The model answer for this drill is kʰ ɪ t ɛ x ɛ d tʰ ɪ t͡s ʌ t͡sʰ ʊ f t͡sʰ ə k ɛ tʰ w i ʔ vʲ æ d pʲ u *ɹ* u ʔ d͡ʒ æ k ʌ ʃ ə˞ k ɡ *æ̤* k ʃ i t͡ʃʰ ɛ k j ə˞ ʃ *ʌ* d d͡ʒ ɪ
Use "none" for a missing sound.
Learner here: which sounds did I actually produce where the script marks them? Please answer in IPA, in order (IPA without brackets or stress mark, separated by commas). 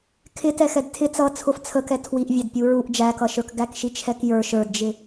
ɹ, æ, ə˞